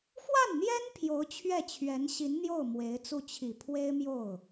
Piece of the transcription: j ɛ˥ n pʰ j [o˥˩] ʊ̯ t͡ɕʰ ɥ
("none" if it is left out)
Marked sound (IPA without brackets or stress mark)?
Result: o˧˥